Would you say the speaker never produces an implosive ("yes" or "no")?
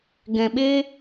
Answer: no